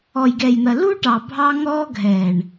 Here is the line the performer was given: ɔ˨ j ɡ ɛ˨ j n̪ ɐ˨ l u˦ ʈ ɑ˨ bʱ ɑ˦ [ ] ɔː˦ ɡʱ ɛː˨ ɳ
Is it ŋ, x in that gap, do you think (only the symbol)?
ŋ